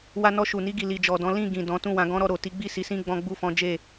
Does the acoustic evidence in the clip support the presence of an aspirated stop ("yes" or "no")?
no